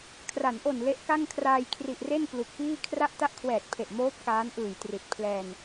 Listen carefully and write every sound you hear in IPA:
kʰ r a˩˦ n ʔ o˨˩ n l e˦˥ ʔ k a˥˩ ŋ kʰ r aː˧ j kʰ r i˨˩ ʔ r e˥˩ n p l u˨˩ k̚ p iː˥˩ kʰ r a˥˩ ʔ t a˥˩ ʔ kʰ w ɛː˨˩ t̚ pʰ e˨˩ ʔ m oː˦˥ p̚ k aː˦˥ n ʔ ɯː˨˩ j t r i˨˩ t̚ pʰ l ɛː˧ n

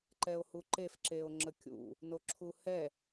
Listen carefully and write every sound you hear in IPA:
ǃ ɛ o̯ h u ǃ e f ǁ e o̯ ŋ͡ǁ ə kʲ ṵ | n o ǁʰ u h ɛ

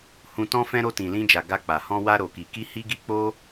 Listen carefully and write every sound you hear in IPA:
h ũ˧ t ɔ̃˦ f ɛ̃˦ ɾ o˧ t ĩ˨ l ĩ˧ d͡ʒ a˨ ɡ a˧ k͡p a˨ h ɔ̃˧ w a˧ ɾ o˨ k i˨ k i˧ h i˧ ɡ i˧ k͡p o˦

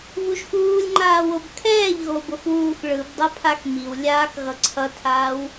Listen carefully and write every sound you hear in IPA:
β u ʒ x uː lʲ ŋ͡ǃ aː w o b kʰ ɛː ʎ ɣ o b o x w uː x ɭ ɯ b dˤ ʌ pʰ a x m i w lʲ aː x ɣ ʌ ǀʰ ʌ tʰ aː w

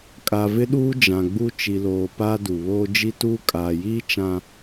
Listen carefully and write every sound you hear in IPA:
kʼ a˨ v ɪ˦ ɗ uː˦ d͡ʒ ã˨ ɡ͡b u˦ t͡ʃ i˨ l oː˨ p aː˦ d u˨ β oː˦ d͡ʒ i˦ t uː˦ kʼ aː˨ j iː˦ t͡ʃ ã˨

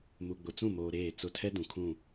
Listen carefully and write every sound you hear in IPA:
m u˨ ɡ͡b ʊ˨ t͡s ũ˦˨ m oː˨ ɾ eː˦˨ t͡s ʊ˦ tʰ ɛ˦ d ũ˨ kʰ ũ˦˨

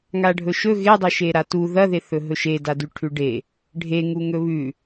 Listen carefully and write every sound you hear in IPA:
ŋ a ɖʱ ɵ ʃ ɵ ɣ e dˤ ɵ ʃ e ɾ a t u ð ɐ ð e θ ɵ ɦ ɵ ʃ e d a d ʉ ʈʰ ʉ ɖ e | ɖʱ e ŋ u ŋ ɵ β ʉ

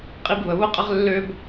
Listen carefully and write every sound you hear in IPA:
qʼ i˦ b β ə˨ β ʊ˦ qʼ ə˦ ʁ lː ø˦ b

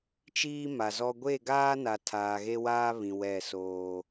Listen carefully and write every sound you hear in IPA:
t͡ʃ iː˦ m a˨ z ɔ˦ ɡʷ e˦˨ ɡ aː˦ n a˨ tʰ aː˨ ɣ e˦ w aː˦ β ĩ˨ w ɛ˦˨ s oː˦

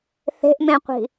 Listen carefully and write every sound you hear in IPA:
θ e̤ ʔ m ẽ qʷ i̤

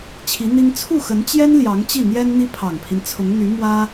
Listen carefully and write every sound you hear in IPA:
t͡ɕʰ i˧˥ n̪ i˥ ŋ t͡sʰ u˥˩ x ə˧˥ n t͡ɕ j ɛ˥ n l j ɑ˧˥ ŋ t͡ɕ i˥˩ n̪ j ɛ˥ n n̪ i˥ pʰ ɑ˨˩ ŋ pʰ i˦ n t͡sʰ ʊ˧˥ ŋ n̪ y˧˥ m w ä˥

